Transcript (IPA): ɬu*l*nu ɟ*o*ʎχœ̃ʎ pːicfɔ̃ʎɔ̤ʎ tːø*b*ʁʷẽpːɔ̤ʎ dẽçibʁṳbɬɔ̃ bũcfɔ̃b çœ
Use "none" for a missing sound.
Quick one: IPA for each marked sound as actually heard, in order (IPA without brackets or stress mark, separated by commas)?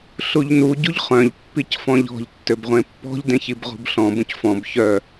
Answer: ʎ, u, b